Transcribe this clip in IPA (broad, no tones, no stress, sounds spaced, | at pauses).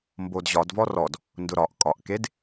m b o d ʑ ɒ d v ɔ r ɔ d | n d ʊ ɾ ɒ ʔ kʼ ɒ ʔ k e d